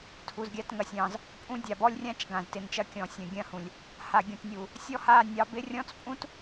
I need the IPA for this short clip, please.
tʰ u˨ z ɡʲ a˦ t ŋ ɐ˨ sʲ ɑ̃˦˨ z | pʼ ũ˦ dʲ a˨ b ɔ˦ lʲ rʲ ã˦ t͡ʃ ɡ ã˨ z t ɪ˨ n t͡ʃ ɐ˦ kʲ ɔ̃˨ sʲ ɐ̃˨ ɡʲ ɐ̃˦˨ h ũ˨ lʲ | h a˨ ɡʲ ũ˨ t nʲ u˨ | sʲ ɔ˦ h a˦˨ nʲ ɑ˦ b ɪ˦ rʲ ɔ̃˦ t͡s pʼ ũ˦ t

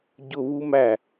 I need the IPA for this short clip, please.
ɟ ʊ β u m æ

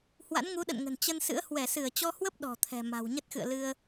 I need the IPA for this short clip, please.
h w a̰˧˥ n ŋ u˨˦ ɗ ə̰˧˨ n ŋ ə̤˨˩ n t͡ɕ ə˧ n s ɨ̰˧˥ ə̯ h w ɛ˧˩ s ɨ˧˩ ə̯ t͡ɕ ɔ˧ h w ə˦˥ p̚ ɗ ɔ̤˨˩ t̪ʰ ɛ̤˨˩ m a̤˨˩ w ɲ ə˦˥ t̚ x ɨ̰˧˨ ə̯ l ɨ˧ ə̯

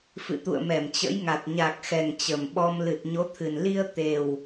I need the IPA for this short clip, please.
f ɨ̰˧˨ t̪ ṵ˧˨ ə̯ m ɛ˧˩ m t͡ɕ ə̰˧˥ j ŋ a˨˩ t̚ ɲ a˨˩ k̚ x ɛ˨˩ ŋ t͡ɕ ə˨˩ m ɓ ɔ˧ m l ɨ˨˩ t̚ ɲ o˨˦ t̪ʰ ɨ˨˩ n l i˧ ə̯ t̪ e˨˩ w

